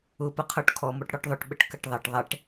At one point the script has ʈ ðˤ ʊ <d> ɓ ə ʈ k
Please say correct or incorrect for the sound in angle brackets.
incorrect